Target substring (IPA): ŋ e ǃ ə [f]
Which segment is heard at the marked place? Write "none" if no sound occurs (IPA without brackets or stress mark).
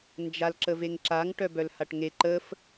f